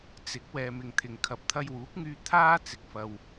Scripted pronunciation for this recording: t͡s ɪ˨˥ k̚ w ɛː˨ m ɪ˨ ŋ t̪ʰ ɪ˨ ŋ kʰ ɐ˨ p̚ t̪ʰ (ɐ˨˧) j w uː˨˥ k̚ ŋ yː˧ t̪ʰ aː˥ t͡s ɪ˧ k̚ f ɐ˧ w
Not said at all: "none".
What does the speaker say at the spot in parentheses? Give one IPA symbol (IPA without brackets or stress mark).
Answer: ɐ˧